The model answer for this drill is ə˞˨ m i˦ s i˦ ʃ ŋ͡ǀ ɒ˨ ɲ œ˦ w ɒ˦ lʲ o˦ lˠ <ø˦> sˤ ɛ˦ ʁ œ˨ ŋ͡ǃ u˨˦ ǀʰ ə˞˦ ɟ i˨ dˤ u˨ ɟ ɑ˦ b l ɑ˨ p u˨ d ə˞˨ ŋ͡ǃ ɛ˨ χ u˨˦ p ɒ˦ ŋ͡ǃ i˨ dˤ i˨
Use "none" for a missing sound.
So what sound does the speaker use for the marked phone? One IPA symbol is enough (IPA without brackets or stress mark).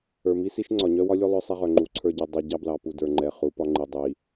œ˦